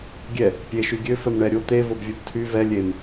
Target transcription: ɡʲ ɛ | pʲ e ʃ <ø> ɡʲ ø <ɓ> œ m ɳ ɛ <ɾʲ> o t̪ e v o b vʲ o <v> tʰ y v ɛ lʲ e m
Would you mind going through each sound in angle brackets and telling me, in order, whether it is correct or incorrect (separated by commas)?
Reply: incorrect, incorrect, correct, incorrect